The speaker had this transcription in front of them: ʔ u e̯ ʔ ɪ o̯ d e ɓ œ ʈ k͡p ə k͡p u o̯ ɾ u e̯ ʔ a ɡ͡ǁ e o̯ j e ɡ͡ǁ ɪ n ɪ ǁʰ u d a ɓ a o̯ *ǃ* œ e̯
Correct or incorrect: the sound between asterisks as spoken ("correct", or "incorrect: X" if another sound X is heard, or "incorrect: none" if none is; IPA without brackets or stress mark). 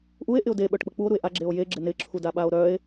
incorrect: ɾ